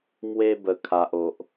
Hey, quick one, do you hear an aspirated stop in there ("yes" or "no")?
yes